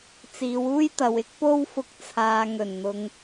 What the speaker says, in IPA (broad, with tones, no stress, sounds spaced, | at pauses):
t͡s iː˨˧ w uː˥ j t̪ ɐ˨ w ɪ˥ k̚ p o˥ w f ʊ˧ k̚ t͡sʰ aː˨ ŋ ɵ˨˩ n n̪ ʊ˨ ŋ